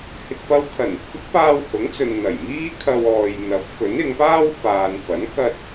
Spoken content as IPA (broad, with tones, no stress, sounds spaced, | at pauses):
h ɪ˨ k̚ p ɐ˧ w kʰ ɐ˨˩ n ɪ˥ k̚ f ɪ˨˥ k̚ p aː˧ w h ʊ˨˥ ŋ t͡s ɵ˨ n n̪ ɐ˨˩ j m iː˥ kʰ ɐ˧ w ɔː˨ j n̪ ɐ˨˥ p̚ f ɵ˨˥ n ɪ˨˧ ŋ p aː˥ w f aː˨ n f ɐ˨˥ n k ɐ˧ t̚